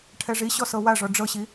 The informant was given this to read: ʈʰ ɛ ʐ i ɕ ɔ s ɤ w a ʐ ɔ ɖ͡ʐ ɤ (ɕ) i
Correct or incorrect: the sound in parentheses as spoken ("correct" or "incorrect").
correct